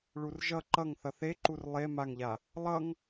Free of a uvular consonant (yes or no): yes